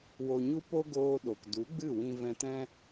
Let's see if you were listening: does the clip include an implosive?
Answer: yes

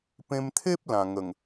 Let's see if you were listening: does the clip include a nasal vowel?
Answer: yes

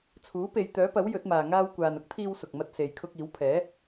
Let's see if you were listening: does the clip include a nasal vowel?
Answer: no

